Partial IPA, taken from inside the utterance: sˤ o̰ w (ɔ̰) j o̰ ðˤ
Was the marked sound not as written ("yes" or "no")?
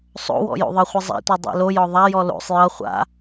no